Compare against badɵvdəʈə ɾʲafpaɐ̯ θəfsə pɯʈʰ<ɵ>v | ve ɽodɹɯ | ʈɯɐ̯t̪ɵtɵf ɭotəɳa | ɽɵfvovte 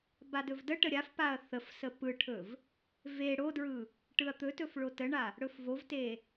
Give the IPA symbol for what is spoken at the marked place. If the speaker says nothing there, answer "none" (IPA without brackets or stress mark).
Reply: ɵ